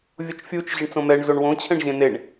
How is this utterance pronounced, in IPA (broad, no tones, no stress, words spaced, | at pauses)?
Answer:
vʲot͡ʃfʲut͡ʃ ʑɨɳt͡sõmɛɳ zoɳwõ t͡ɕʰɛ̃ɳʑẽneɳ